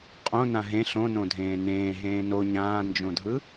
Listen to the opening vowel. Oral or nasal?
nasal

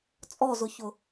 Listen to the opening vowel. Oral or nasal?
oral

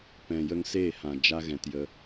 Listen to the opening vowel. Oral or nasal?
nasal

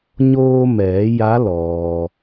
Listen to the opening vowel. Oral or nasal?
oral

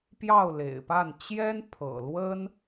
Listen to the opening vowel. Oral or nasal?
oral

